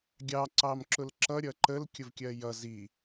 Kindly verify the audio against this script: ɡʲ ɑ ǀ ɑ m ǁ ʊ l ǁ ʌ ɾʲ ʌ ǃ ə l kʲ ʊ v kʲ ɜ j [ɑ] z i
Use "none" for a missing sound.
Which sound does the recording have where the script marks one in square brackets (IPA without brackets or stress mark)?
ʌ